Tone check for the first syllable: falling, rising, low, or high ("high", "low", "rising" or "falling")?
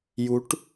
rising